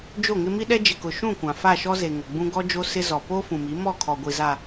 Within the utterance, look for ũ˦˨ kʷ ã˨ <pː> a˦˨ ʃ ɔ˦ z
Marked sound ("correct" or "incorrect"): incorrect